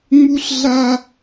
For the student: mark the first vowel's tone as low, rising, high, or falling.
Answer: high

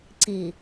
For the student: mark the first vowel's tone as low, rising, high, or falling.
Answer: low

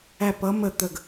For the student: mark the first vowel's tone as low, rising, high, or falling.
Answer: falling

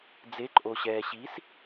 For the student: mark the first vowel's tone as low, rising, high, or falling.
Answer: rising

